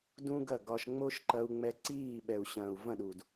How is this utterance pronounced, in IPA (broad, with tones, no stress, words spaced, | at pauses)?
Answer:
dũ˦ɡɐ˦˨ɡɒ˧ʃ ŋ͡mo˦ʃǃɐ˧u̯ ŋ͡mɛ˧ǀiː˦˨ɓɛ˨u̯ɕɐ̃ː˨u̯ vɐ̃˦˨ɗu˨d